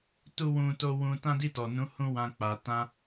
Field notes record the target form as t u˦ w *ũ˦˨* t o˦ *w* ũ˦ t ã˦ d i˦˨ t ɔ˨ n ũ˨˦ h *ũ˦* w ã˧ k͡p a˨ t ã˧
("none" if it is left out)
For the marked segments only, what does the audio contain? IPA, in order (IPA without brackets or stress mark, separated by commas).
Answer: ũ˦, w, ũ˦